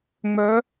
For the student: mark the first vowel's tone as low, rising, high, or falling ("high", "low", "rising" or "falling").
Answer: rising